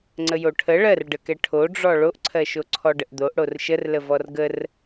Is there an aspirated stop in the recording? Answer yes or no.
yes